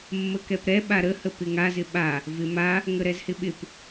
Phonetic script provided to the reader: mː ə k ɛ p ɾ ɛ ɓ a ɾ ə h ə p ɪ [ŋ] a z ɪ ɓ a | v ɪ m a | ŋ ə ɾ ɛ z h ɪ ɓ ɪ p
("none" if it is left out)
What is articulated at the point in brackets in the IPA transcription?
ŋ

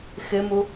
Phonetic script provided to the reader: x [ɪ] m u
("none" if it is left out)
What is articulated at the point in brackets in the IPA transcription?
ɪ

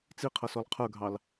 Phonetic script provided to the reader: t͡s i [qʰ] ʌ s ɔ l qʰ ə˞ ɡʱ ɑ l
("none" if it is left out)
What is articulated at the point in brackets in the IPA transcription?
qʰ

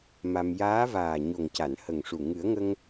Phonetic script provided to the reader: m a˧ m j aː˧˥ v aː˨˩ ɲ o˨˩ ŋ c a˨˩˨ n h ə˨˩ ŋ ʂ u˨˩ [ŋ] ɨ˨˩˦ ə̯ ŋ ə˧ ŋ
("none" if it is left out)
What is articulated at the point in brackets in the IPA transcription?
ŋ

